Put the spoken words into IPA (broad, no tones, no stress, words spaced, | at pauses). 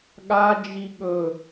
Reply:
ɠad͡ʒi ɠɵ